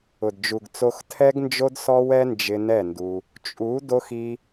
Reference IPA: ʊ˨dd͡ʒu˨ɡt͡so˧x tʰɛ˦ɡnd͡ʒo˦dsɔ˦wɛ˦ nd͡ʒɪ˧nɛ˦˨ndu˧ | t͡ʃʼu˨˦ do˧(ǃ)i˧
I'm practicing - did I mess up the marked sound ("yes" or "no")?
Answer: yes